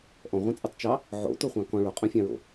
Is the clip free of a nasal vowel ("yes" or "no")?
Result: no